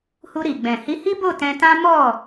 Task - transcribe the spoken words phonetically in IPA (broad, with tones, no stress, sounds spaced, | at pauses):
h u˧ ɾ i˨ ɡ͡b ɛ̃˨ h i˨˦ h i˦ b o˦˨ t ɛ̃˧ t ã˦ m ɔ˦˨